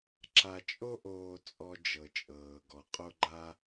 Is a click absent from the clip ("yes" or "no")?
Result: no